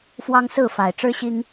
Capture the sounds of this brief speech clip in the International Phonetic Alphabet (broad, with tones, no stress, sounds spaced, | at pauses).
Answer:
f w ɑ˦ ŋ s ɹ̩˥˨ f a˨˩ ɪ̯ ʈ͡ʂ ɻ̩˦ ɕ i˦ ŋ